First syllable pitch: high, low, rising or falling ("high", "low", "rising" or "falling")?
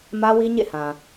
high